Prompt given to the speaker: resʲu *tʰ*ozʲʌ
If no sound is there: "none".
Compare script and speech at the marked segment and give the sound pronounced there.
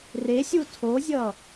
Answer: tʰ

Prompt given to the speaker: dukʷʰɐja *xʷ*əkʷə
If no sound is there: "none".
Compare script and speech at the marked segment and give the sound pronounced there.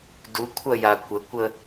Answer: kʷ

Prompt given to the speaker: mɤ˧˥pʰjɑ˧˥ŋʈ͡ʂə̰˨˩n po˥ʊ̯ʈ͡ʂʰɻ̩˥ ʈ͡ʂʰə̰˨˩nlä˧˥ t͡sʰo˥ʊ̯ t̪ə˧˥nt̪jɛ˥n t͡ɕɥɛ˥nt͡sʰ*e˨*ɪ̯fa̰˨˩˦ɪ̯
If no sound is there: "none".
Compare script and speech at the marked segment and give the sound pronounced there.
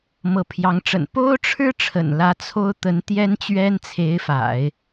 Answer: e˧˥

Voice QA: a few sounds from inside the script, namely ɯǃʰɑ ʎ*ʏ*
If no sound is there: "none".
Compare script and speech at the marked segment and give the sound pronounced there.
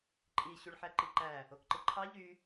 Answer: y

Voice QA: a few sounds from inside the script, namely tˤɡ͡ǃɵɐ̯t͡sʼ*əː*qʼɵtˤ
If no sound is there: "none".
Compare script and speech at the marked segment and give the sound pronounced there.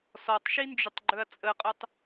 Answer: ə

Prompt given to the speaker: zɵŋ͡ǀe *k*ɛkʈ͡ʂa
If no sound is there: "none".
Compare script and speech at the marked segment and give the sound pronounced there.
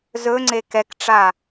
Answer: k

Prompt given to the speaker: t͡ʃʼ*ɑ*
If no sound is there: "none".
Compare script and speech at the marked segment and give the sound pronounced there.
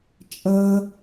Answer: ʌ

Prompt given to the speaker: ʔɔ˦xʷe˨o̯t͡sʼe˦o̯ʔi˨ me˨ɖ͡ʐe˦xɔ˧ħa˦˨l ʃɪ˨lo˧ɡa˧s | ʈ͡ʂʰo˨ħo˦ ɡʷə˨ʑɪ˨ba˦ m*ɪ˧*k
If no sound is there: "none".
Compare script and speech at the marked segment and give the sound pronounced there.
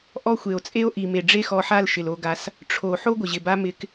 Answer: ɪ˧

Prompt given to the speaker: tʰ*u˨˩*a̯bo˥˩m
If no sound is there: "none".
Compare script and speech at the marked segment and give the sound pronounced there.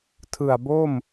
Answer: ɯ˨˩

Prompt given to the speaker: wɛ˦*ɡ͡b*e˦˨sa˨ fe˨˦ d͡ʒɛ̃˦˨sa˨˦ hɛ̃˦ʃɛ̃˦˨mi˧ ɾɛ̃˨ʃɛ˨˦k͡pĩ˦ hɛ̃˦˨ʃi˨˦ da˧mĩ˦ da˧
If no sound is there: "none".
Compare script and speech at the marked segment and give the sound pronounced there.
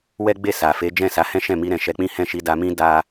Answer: ɡ͡b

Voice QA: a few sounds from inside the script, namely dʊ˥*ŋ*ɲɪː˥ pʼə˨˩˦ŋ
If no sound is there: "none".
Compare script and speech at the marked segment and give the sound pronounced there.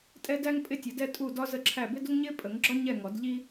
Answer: ŋ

